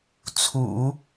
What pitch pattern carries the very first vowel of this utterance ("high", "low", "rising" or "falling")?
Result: low